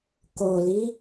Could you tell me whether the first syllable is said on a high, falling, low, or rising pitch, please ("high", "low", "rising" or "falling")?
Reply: low